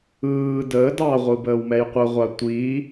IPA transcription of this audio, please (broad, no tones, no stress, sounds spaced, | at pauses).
ɯː d əː d ɑ ʁʷ ɯ b əː w m ɛ j qʷ ə ʁʷ a tʷ i